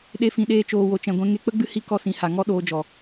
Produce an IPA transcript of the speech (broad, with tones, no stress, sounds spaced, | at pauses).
ɗ e˧ f ĩ˨ ɗ eː˧ t͡ʃ oː˨ w o˨ t͡ʃ ɛ̃˨ ɡʷ ɛ̃˧ ŋ e˧ k͡p ə˦ ɡ͡b ɨ˦ h i˦ k ɔ˦ s ĩ˨˦ h a˨ ŋ ɔ˦ ɗ oː˧ d͡ʒ ɔ˨